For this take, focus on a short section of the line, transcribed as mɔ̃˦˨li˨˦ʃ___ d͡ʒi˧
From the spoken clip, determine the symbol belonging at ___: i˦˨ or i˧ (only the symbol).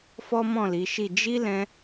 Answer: i˦˨